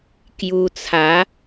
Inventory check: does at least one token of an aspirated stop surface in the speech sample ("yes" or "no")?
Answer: yes